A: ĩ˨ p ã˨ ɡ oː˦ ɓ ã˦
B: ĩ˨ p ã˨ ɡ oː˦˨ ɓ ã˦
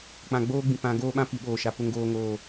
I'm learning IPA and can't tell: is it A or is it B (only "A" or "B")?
A